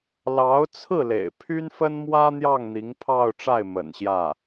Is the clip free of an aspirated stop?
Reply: no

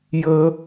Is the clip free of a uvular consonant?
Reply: yes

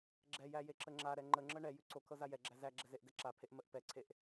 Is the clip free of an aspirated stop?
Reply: no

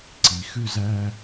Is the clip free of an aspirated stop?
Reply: yes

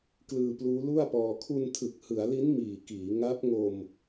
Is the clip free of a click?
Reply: yes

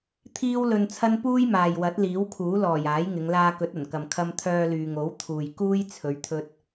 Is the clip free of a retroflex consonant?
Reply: yes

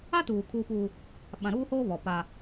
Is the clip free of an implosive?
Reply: no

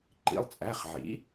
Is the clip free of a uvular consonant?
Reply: no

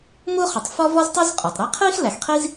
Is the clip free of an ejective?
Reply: no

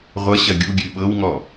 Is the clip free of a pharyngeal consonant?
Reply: yes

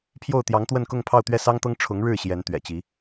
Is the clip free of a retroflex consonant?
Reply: no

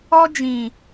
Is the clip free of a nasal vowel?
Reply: no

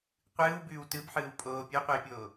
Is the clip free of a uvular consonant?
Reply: no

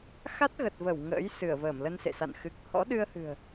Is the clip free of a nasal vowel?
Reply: yes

